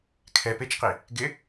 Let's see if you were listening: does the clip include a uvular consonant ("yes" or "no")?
yes